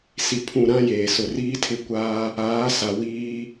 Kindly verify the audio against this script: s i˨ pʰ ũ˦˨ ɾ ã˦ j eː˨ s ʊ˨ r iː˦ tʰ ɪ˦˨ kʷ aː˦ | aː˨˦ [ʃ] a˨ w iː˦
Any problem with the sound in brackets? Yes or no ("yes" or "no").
yes